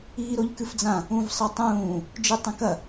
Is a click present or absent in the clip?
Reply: absent